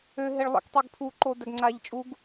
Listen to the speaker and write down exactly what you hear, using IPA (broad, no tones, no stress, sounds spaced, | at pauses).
ø ɦ e ɭ lˠ ə̰ k tˤ e ɡ pʰ u ǃ o d æ ɡ ŋ͡ǀ aː ʎ t͡ʃʼ u ɡ